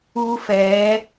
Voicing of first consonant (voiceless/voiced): voiceless